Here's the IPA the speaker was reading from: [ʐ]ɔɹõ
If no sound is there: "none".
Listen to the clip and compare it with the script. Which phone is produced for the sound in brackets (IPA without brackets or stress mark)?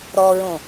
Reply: ɾ